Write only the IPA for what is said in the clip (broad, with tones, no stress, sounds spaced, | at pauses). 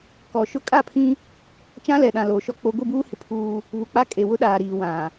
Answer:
k ɔ˨ ʃ ʊ˦ kʼ a˦˨ pʰ ĩ˦ | t͡ʃ ã˦ l ɛ˨ ɗ ã˨ l oː˨ ʃ ɔ˦ k͡p o˦ ɡʷ i˦˨ b uː˦ h ɪ˨ pʰ uː˦ | β u˨ k͡p a˦ kʼ e˨ w ʊ˦ ɗ aː˨ ɾ iː˨ w ã˨